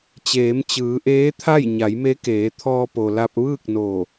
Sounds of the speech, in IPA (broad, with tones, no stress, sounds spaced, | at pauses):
t͡ɕ eː˩˧ m t͡ɕ ɯː˩˧ ʔ eː˧˥ t̪ʰ a˥˨ j ɲ a˩˧ j m e˧˥ k eː˩˧ t̪ʰ ɔː˧ p o˩ l a˧ p̚ ʋ ɯː˥˨ k̚ n o˧˩